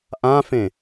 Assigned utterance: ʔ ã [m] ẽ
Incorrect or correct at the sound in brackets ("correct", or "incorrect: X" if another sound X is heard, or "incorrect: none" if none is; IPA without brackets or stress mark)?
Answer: incorrect: f